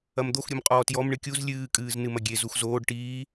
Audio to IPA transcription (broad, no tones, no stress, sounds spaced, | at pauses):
ɐ m d̪ o x ɾʲ u m qʼ ɔː t j ɔ m ɳ ɨ kʲ u z lʲ ɨː kʼ ɨː z n ɨ m ɐ ɡʲ e z u x z oː ɖ ʈ iː